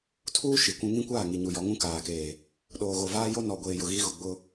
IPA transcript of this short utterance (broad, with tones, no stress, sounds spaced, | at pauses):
tʰ uː˦ ʃ i˨ kʷ ũ˦ ŋ ĩ˦ kʷ aː˦˨ ŋ i˨ ɲ u˨ j ɔ˨˦ ŋ ũ˦ k aː˨ k eː˨ | ɗ oː˨ ɣ o˨ v aː˦ j o˦ n ɔ˨ ɡʷ eː˨ j ʊ˨ ɣ i˦ ɣ ʊ˨ ɡ͡b ʊ˦